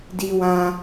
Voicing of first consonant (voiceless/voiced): voiced